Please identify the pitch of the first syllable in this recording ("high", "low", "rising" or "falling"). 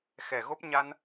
low